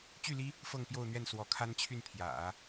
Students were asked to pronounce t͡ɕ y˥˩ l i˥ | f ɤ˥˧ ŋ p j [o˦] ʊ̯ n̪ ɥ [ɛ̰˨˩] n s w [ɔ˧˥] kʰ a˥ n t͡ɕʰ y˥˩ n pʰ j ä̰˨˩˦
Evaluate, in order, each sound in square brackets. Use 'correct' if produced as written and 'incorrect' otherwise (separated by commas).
incorrect, incorrect, correct